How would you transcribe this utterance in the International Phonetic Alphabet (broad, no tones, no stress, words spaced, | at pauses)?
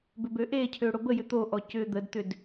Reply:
bʏbøʔecʰø ɽobəjʏ t̪oʔɔ cʏːd̪ədt̪ʏd